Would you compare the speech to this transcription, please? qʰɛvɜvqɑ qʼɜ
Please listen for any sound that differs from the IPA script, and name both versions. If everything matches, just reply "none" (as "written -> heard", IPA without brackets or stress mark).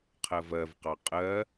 ɛ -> ɜ